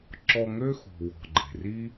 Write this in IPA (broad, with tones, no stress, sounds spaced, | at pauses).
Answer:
ǁ ɔ˧ ŋ ø˦ x ṳ˨ w ɔ̤˨ ɡ͡ǃ e̤˨ r i˦